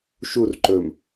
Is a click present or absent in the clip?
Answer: present